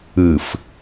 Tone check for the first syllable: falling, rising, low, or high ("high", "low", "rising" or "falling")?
low